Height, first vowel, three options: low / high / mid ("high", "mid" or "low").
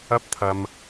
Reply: low